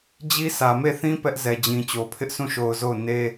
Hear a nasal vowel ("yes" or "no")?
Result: yes